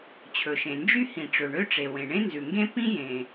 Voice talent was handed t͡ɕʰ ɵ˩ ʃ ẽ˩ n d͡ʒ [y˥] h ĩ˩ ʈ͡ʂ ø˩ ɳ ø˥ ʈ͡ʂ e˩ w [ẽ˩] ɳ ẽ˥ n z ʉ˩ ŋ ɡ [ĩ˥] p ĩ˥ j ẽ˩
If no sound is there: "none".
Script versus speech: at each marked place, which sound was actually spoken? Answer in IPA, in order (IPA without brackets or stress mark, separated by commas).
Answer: y˥, ẽ˩, ẽ˥